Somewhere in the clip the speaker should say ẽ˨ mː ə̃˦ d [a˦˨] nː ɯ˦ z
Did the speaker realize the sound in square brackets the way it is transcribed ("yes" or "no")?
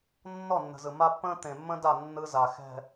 yes